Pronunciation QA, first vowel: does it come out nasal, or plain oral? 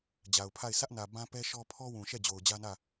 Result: oral